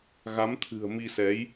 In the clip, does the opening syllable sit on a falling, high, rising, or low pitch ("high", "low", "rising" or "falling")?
rising